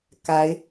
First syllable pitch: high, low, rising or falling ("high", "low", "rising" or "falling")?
rising